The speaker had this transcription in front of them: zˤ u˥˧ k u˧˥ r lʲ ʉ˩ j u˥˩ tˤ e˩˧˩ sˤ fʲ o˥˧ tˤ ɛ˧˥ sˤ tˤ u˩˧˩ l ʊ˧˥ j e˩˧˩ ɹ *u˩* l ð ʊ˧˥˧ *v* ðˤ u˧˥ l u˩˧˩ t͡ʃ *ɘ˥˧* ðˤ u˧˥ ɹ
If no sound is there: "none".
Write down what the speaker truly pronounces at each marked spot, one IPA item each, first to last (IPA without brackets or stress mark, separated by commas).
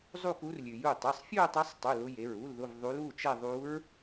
u˧˥˧, v, ɛ˥˧